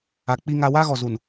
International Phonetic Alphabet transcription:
a˨ k͡p i˦ ŋ a˦ w a˦ ɣ ɔ˨ z u˨ n

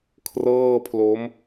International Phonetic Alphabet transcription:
kʰ r ɤː˥˩ pʰ l o˦˥ m

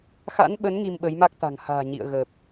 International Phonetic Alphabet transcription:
x a̰˧˥ n ɓ ə˨˦ n ŋ i˧ m ɓ ə˨˦ j m a˦˥ k̚ t̪ a̤˨˩ ŋ h a̤ː˨˩ ɲ ḭ˧˨ ə̯ ɣ ə˨˩ p̚

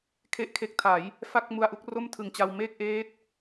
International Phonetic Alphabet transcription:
kʰ e˥˩ ʔ kʰ e˦˥ k̚ tʰ a˩˦ j | f a˥˩ k̚ m u˧ a̯ ʔ u˥˩ k̚ r o˥˩ m tʰ ɯ˨˩ ŋ t͡ɕ a˧ w m eː˥˩ k̚ ʔ eː˦˥ t̚

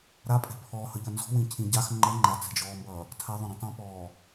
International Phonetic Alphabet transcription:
ɾ a pʼ ɛ̤ pʰ ɔ h ʌ ʎ ʌ n z ɔ̤ w ĩ cʰ ĩ ɟ a x ŋ͡ǃ ʌ ŋ͡ǃ a t͡s ɛ̤ d͡ʒ ɔː m b ʌː | tʰ a ðˤ õ ɾ ĩ tˤ ĩ p ɔː

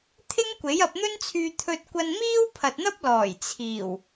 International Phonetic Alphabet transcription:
t̪ʰ ɪ˥ ŋ kʷ e˨˥ j ɐ˧ p̚ n̪ ɵ˥ n t͡sʰ yː˧ t̪ʰ ɵ˧ t̚ kʷ ɐ˧ n m iː˥ w pʰ ɐ˨ t̚ n̪ ɐ˥ p̚ l ɔː˨˩ j t͡sʰ iː˨˩ w

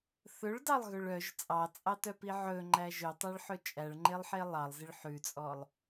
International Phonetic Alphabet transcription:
θ ɵ ɭ d ɑ lˠ ɣ ɵ ɭ œ ʒ t͡sʼ ɑ t͡sʼ ɑ t œ p i ʕ ɵ ŋ͡ǃ æ ʒ ø tˤ æ ɭ ħ ɵ t͡ʃʼ æ ɭ ŋ͡ǃ e lˠ ħ e lˠ ɑ lˠ z i ɭ ħ ʉ t͡sʼ ɔ lˠ

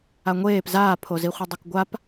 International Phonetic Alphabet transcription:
a ŋʷ eː p z aː pʰ o z i χʷ e dˤ o k ɡʷ a p

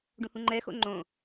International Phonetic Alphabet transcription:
ɖ ũ h ũ ŋ͡ǃ ɛ x o̰ ŋ͡ǃ õ

